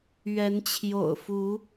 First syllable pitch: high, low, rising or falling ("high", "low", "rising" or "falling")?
rising